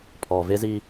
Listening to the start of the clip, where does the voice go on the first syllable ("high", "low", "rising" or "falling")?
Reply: low